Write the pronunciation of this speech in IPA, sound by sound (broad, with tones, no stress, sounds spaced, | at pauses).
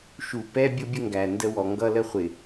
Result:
ʃ u˨ p ɛ˦ bʲ ʊ˦ bʲ ə˦ ŋ ɡ æ˨ n d ə˦ w ɔ˨ ŋ ɡ ʌ˦ l ə˦ χʷ ɪ˨